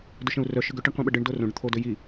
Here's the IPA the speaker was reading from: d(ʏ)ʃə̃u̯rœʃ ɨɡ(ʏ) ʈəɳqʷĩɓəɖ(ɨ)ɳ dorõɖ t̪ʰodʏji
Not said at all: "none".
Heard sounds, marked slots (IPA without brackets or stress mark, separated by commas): ʏ, ʏ, ɨ